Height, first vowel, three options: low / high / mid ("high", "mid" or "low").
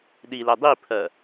high